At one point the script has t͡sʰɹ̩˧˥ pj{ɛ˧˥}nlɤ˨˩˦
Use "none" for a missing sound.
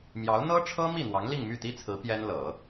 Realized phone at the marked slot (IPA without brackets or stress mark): ɛ˥